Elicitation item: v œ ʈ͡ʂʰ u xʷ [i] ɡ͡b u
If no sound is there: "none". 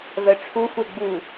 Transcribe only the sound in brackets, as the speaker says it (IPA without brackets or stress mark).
e